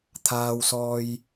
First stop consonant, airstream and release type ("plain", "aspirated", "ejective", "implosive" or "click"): aspirated